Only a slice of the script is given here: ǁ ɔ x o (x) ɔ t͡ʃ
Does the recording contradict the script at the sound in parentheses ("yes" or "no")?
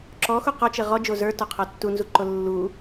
yes